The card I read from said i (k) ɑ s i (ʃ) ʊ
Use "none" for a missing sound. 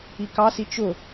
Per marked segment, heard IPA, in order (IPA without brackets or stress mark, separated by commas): k, t͡ʃ